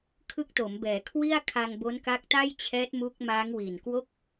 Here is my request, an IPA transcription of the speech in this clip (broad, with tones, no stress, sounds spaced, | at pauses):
kʰ ɯ˦˥ k̚ t o˩˦ m b ɛː˩˦ kʰ w i˥˩ a̯ kʰ a˧ ŋ b o˦˥ n k a˦˥ k̚ t a˥˩ j t͡ɕʰ ɛː˦˥ t̚ m u˦˥ k̚ m aː˦˥ ŋ w i˨˩ n k w o˥˩ k̚